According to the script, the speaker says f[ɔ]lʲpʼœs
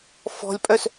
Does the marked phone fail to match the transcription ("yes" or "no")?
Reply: yes